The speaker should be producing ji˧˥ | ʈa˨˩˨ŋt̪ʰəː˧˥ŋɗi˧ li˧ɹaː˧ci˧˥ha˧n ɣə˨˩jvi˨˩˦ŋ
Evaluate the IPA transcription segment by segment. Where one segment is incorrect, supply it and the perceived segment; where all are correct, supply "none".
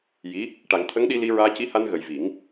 əː˧˥ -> ə˧˥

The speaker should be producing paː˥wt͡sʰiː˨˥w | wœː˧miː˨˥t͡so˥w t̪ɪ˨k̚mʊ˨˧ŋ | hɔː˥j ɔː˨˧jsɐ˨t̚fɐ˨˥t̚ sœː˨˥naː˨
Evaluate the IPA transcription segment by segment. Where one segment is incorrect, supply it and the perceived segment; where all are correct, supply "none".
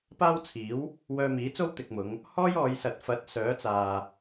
n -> t͡s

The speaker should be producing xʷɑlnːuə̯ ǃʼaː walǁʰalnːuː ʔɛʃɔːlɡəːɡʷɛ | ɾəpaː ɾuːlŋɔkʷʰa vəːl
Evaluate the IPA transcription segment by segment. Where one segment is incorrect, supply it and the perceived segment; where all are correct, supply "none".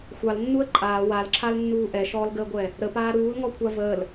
none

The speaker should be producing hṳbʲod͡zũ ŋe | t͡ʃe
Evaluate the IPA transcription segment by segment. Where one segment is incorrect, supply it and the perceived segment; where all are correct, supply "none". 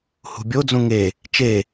none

